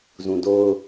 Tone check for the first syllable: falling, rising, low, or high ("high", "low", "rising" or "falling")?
low